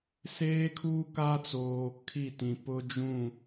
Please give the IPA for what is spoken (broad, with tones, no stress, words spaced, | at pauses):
seː˦kʰuː˦ ka˦t͡soː˨kʰi˦˨tĩ˨ pʊ˦d͡ʒũ˦˨